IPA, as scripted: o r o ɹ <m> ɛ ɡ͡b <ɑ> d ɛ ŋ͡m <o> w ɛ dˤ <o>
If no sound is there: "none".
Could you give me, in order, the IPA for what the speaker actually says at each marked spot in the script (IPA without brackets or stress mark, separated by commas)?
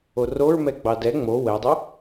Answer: m, ɑ, o, o